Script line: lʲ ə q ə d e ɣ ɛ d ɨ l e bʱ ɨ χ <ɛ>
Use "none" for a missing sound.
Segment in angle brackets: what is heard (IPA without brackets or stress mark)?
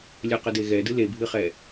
ɛ